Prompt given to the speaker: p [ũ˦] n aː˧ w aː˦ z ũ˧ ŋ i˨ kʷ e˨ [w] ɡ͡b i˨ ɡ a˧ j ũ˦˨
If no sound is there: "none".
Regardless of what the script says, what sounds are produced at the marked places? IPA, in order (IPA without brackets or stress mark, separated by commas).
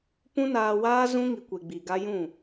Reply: ũ˦, none